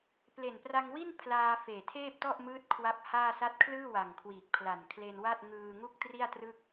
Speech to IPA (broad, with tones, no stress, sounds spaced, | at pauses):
p l e˨˩ n p r a˧ ŋ w i˥˩ n pʰ l aː˧ f eː˨˩ tʰ eː˥˩ p̚ t ɔ˥˩ ʔ m ɯː˦˥ t̚ kʰ w a˦˥ p̚ h aː˥˩ s a˦˥ t̚ kʰ l ɯː˥˩ w a˨˩ ŋ kʰ w iː˨˩ k̚ pʰ l a˨˩ n kʰ l e˧ n w a˥˩ t̚ ŋ ɯː˧ ŋ u˥˩ k̚ t r i˥˩ a̯ t r ɯ˥˩ k̚